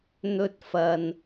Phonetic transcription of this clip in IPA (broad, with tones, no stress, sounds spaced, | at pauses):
n̪ ɵ˥ t̚ f ɐ˧ n